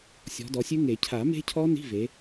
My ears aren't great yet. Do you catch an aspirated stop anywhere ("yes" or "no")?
yes